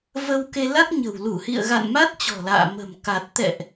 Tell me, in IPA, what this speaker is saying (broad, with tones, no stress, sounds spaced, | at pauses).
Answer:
v ə˧ w k e˧ l a˦˥ k̚ ɲ ə̤˨˩ w l u˧˩ h ḭ˧˨ ə̯ ɣ a̰˧˨ n m a˦˥ t̚ t͡ɕ ɔ̤˨˩ l a̰ː˧˨ m ə̤˨˩ m k a˨˩ t̚ t̪ ɛ̰˧˨ ʔ